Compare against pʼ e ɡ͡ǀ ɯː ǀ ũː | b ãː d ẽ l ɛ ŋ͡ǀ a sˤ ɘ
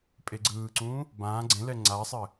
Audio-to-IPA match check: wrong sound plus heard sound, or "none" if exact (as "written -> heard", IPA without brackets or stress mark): d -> ɡ͡ǀ